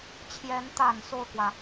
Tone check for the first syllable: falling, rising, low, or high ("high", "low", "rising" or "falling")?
rising